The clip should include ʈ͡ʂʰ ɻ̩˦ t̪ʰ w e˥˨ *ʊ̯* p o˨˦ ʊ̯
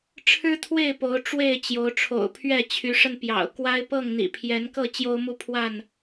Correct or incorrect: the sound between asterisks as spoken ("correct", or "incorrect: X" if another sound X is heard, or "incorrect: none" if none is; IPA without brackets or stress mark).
incorrect: ɪ̯